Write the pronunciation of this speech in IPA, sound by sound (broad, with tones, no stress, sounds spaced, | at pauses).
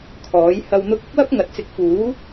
kʰ ɔː˨˥ j h ɐ˧ w n̪ ʊ˧ k̚ ʊ˥ k̚ w ɐ˥ p̚ ŋ ɐ˨ t̚ t͡s ɪ˨˥ k̚ f uː˨˥